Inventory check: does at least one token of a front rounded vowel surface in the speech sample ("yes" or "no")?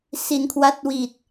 no